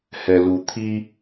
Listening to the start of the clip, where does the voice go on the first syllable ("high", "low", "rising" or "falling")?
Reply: low